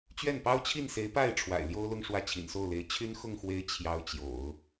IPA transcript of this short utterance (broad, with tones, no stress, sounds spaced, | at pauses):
t͡ɕ ɥ ɛ˥˩ n p ɑ˥ ʊ̯ t͡ɕʰ i˥˩ n s e˧˥ ɪ̯ p a˥˩ ɪ̯ ʈ͡ʂʰ w a̰˨˩ ɪ̯ l j o˥ ʊ̯ l ʊ˥˧ ŋ ʂ w ä˥˩ t͡ɕʰ ḭ˨˩ n s o˥˩ ʊ̯ l e˧˥ ɪ̯ t͡ɕʰ y˥ n x ʊ˥˩ ŋ x w e˧˥ ɪ̯ t͡ɕʰ j ɑ˧˥ ʊ̯ t͡ɕ j o̰˨˩˦ ʊ̯